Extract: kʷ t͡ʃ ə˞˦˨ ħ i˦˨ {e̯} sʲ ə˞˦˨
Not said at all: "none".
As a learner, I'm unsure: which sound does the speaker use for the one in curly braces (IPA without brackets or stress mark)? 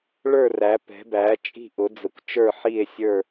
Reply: e̯